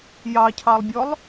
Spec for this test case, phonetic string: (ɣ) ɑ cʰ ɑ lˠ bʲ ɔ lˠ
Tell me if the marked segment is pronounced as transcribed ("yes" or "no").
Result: no